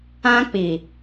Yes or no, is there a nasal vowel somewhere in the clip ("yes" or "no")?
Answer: yes